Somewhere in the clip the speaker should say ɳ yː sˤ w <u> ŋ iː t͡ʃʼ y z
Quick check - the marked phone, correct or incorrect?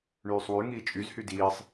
incorrect